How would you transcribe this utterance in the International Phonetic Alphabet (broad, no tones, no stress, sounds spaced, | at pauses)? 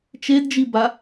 t͡ʃ e d d͡ʒ i b a